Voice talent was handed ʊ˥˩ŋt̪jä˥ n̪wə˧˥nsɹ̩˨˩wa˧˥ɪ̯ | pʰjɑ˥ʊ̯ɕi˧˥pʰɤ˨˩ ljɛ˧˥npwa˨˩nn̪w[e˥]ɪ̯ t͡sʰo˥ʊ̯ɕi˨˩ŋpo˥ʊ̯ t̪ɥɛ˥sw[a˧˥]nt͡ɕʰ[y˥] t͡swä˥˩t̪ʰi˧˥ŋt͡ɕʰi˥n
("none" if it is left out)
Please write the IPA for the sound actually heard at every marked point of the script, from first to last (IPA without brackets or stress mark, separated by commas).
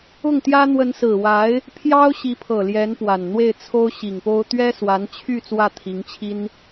e˥˩, a˧˥, y˥˧